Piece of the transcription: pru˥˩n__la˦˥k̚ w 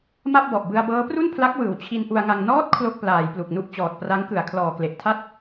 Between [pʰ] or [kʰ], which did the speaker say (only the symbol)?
pʰ